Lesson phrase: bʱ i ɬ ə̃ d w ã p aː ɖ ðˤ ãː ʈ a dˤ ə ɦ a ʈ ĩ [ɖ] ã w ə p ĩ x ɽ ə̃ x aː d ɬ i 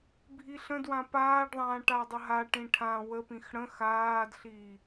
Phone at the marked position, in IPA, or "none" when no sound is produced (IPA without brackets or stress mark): ʈʰ